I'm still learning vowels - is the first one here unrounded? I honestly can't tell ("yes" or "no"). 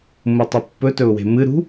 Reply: no